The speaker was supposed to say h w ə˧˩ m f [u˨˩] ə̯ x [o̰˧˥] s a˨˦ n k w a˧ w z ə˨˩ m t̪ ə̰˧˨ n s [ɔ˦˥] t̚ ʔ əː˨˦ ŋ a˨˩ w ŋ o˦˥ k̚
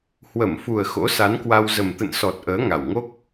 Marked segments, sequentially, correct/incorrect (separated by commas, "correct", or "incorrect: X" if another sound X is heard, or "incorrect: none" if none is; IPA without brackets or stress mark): correct, correct, incorrect: ɔ˨˩